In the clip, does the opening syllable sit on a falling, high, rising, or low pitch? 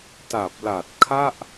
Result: low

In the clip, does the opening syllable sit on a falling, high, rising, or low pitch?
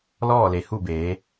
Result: falling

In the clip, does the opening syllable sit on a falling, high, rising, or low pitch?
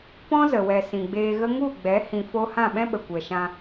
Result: high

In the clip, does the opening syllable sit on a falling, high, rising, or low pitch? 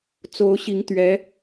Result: rising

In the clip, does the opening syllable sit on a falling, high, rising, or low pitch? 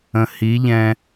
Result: low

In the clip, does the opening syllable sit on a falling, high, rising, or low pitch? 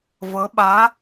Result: rising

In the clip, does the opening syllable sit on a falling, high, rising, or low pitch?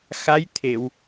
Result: rising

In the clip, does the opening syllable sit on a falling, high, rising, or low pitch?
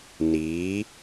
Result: rising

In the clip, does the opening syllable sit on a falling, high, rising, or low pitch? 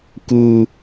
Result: high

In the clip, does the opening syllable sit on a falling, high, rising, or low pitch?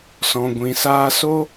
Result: low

